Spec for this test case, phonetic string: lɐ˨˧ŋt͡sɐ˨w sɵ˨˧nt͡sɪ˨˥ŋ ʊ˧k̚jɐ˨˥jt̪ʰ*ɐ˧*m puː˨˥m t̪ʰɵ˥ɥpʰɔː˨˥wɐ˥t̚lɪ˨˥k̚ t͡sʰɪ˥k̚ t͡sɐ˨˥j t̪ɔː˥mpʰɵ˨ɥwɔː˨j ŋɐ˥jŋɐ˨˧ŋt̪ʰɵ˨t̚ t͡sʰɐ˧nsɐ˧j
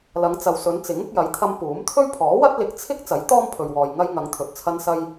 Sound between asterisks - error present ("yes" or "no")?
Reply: no